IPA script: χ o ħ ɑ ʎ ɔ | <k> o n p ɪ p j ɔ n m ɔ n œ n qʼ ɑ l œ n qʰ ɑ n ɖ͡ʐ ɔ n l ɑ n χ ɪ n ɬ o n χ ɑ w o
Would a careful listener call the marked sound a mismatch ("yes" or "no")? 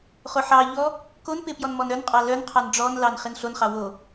no